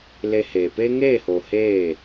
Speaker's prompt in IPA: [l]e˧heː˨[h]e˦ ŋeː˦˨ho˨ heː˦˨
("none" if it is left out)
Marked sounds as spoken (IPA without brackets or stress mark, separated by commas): l, p